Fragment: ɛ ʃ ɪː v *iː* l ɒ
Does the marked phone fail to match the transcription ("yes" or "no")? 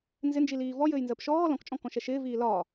no